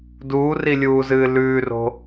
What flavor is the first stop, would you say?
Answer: plain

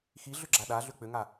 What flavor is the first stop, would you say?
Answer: click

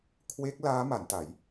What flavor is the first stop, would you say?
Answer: aspirated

